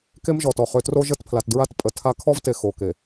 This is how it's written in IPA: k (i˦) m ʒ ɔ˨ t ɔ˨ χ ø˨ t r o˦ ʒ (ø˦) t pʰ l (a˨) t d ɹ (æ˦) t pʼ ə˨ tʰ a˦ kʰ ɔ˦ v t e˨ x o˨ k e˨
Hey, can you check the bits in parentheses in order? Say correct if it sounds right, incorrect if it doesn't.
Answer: incorrect: e˦, incorrect: ə˦, correct, incorrect: a˦

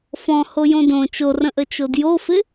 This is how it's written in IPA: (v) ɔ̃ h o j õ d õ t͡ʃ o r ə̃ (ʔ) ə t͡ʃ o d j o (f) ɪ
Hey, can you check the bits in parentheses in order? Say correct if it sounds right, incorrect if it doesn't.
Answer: incorrect: f, correct, correct

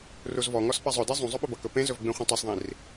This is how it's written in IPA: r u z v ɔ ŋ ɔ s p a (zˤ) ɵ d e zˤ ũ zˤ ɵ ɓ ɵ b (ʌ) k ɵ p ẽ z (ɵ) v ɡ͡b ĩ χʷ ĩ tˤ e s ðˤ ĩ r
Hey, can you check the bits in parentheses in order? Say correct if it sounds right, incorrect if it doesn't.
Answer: correct, correct, correct

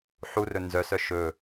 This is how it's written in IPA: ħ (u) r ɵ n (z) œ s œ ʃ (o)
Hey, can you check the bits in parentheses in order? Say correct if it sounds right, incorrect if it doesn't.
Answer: correct, correct, incorrect: ɵ

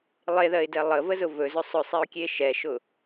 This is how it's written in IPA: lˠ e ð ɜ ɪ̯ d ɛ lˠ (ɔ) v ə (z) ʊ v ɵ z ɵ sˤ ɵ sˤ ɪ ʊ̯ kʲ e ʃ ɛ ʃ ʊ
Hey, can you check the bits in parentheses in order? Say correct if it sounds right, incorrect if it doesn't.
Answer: incorrect: ə, correct

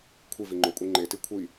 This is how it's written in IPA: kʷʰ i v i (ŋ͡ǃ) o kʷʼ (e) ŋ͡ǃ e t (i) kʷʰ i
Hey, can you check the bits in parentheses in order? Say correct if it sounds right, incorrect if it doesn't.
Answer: correct, incorrect: i, correct

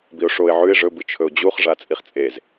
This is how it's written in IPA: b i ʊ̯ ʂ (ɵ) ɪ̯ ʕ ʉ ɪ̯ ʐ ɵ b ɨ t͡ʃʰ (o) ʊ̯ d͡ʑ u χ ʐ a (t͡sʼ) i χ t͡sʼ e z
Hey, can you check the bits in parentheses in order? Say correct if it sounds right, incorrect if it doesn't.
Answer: incorrect: o, incorrect: ɵ, correct

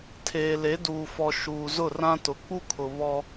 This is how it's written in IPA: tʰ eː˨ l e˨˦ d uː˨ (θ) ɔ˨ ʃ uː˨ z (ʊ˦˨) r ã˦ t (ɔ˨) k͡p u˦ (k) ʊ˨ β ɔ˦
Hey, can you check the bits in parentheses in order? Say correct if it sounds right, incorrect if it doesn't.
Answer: incorrect: f, correct, incorrect: ʊ˨, incorrect: kʰ

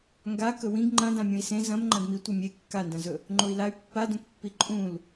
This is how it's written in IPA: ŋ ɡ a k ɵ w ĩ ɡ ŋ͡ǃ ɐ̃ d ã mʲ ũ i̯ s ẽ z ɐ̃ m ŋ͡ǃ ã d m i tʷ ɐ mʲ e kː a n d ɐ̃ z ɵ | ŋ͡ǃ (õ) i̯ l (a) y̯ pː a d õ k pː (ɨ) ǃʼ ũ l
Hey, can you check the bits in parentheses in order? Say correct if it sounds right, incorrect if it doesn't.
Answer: incorrect: o, correct, incorrect: i

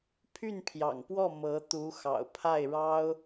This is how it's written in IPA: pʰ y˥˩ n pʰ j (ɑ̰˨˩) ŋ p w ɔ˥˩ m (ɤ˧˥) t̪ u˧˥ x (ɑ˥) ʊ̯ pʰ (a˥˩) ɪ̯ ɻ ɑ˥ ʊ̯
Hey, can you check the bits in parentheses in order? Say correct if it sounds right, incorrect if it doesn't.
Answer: correct, correct, incorrect: ɑ̰˨˩, correct

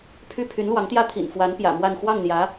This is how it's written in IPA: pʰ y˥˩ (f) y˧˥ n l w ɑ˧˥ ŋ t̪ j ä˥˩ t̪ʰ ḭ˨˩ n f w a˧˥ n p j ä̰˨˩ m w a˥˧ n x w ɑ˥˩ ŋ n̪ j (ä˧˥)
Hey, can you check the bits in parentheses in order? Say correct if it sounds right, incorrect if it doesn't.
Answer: incorrect: pʰ, correct

